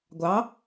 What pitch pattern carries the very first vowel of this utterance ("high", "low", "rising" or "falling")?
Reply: rising